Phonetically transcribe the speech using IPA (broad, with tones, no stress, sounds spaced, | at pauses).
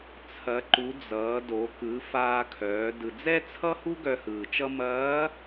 t͡sʰ ɐ˩˧ ǃ u˩˧ d͡z ʌː˩˧ d o˩˧ k ɯ˩˧ f aː˧ kʰ œː˩˧ d ɯ˩ d͡z ɛ˥ t͡sʰ ʌ˥ h u˥ ɡ œ˧ h ɯː˩ t͡ʃ ʌ˥ m ɐː˧˥